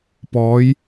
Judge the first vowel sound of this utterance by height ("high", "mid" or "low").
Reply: mid